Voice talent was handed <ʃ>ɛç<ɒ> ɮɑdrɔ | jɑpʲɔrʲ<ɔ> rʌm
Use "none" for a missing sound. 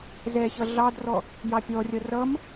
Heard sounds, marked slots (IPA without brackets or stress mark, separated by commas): z, ʌ, ʌ